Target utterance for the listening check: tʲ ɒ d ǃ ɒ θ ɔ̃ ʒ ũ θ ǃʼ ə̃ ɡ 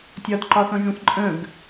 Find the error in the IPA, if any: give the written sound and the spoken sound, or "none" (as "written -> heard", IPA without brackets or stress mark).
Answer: none